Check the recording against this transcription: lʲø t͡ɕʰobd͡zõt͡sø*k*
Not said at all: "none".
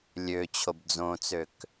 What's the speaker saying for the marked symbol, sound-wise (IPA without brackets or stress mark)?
k